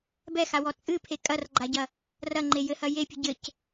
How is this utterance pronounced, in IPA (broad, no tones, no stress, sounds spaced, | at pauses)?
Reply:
b ɛ x a w ɔ t͡sʼ ɨ pʰ e kʼ ɐ r ɡ͡ǃ a ɟ ɐ | r ɐ ŋ͡ǃ e j ɘ h ɐ j e pʲ ɨ ɟ ɘ c